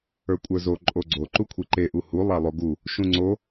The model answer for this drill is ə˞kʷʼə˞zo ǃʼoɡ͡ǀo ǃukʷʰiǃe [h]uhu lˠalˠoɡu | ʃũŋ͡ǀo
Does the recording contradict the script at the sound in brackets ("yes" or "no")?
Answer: yes